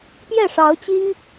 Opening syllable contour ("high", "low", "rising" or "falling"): falling